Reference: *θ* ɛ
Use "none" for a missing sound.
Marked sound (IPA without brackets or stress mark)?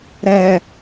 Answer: ɾ